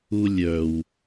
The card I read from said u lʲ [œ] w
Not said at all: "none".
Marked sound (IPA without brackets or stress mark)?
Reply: œ